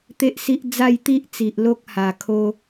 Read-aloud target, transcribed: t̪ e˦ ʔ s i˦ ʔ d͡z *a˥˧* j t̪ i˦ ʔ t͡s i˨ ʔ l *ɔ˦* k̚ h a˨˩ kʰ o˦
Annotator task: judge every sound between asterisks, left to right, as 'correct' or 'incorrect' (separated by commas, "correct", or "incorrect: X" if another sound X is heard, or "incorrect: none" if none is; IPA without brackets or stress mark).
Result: correct, incorrect: o˦